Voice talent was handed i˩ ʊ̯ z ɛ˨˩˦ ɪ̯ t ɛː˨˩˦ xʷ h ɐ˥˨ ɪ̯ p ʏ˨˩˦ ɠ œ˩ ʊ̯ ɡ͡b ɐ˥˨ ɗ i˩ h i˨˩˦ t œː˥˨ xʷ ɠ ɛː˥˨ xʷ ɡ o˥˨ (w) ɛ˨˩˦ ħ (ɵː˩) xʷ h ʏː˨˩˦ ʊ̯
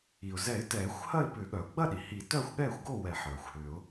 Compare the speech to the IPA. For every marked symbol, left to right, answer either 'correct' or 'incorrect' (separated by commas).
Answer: correct, incorrect